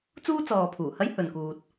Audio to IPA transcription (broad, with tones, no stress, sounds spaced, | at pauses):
t͡s uː˥ t͡s ɔː˨ pʰ uː˨˩ h ɐ˥ j h ɵ˨ n k uː˨ t̚